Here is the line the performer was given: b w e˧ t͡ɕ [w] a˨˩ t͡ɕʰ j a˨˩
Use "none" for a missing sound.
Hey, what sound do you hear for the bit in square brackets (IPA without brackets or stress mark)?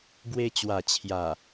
w